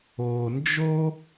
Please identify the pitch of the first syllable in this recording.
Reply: low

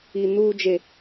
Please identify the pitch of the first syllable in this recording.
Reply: high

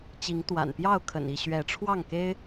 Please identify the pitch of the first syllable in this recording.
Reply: rising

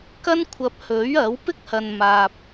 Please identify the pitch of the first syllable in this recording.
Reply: high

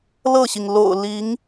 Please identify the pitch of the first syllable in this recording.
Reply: falling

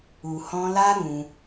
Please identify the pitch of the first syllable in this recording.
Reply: low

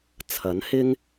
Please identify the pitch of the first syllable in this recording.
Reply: rising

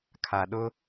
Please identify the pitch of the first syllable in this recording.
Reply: low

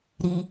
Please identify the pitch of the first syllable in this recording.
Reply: low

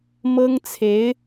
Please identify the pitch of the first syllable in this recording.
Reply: high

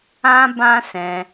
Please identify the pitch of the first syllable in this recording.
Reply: high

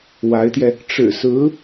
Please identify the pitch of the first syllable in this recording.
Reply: rising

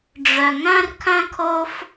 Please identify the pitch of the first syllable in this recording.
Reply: low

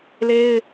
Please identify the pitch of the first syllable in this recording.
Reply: high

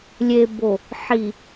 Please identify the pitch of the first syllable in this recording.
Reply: low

